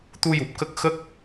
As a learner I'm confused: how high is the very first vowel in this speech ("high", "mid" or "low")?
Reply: high